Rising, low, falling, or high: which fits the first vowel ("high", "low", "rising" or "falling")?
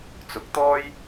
rising